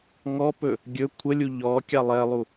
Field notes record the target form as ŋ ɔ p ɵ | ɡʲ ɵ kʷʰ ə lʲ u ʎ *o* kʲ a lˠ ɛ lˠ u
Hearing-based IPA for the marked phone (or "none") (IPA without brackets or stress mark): ɔ